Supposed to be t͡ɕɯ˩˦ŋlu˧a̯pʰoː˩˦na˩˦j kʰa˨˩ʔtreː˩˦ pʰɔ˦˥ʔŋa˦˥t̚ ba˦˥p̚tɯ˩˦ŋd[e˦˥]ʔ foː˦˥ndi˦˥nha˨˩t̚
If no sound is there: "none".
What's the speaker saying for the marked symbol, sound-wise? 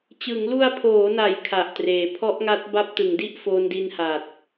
i˦˥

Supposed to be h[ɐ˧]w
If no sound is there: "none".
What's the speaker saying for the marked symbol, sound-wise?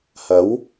ɐ˨˥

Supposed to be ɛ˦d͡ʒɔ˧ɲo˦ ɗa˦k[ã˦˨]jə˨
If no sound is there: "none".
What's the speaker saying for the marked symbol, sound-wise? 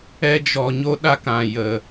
ã˨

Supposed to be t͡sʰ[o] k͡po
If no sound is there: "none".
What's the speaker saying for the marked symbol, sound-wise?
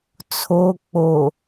o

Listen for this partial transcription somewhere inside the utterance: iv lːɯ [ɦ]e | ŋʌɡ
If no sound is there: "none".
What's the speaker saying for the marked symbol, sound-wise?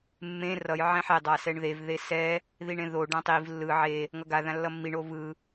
ʕ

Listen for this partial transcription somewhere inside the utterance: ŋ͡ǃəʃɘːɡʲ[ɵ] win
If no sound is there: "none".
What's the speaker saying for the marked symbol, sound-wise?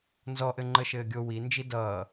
o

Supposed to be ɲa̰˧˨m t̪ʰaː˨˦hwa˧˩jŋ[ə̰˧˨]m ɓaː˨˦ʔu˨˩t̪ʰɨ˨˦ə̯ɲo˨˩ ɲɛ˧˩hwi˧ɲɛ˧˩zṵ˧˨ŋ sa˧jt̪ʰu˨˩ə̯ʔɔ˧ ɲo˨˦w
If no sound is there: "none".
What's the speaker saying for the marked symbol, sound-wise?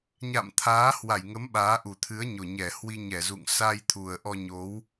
ə˨˦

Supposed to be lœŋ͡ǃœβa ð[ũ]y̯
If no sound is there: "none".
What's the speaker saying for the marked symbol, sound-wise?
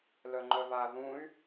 ũ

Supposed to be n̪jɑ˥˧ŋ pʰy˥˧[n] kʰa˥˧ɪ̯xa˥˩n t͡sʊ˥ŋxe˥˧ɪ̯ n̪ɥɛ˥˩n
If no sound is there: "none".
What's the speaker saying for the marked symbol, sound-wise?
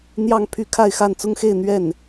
none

